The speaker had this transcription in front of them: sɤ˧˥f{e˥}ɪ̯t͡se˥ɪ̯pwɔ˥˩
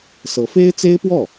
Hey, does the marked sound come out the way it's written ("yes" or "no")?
yes